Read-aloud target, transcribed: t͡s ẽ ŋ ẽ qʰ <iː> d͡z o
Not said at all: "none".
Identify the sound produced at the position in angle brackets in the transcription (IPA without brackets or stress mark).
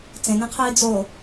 iː